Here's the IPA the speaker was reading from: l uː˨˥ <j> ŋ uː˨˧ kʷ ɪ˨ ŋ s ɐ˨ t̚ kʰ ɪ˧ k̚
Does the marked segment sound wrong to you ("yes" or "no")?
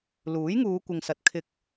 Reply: no